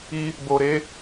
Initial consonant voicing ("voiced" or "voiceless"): voiced